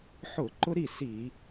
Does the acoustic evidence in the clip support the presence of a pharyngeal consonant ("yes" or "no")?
yes